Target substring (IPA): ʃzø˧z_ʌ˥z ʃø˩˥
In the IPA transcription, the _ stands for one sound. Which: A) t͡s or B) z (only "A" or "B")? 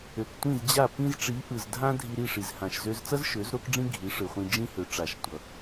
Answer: A